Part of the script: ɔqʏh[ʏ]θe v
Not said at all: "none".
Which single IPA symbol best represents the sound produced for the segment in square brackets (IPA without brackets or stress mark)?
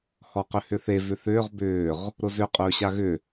ʏ